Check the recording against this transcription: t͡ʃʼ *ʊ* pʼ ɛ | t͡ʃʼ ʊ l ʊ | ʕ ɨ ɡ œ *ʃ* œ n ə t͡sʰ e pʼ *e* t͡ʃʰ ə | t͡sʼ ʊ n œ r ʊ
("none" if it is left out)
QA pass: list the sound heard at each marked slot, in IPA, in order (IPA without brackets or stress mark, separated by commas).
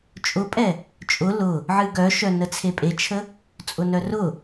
ʊ, ʃ, e